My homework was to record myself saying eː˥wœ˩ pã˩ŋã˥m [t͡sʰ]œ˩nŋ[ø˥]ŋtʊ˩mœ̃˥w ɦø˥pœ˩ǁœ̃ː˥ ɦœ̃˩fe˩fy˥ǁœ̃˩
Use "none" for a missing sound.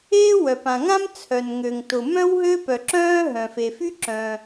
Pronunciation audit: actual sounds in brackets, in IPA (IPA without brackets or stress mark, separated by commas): t͡sʰ, ø˩